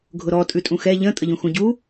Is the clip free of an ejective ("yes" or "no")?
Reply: no